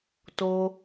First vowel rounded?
yes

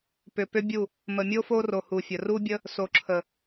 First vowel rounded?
yes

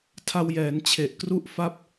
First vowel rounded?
no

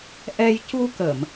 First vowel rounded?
no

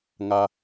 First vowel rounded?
no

